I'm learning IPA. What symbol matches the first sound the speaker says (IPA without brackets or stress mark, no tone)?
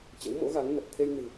t͡ɕ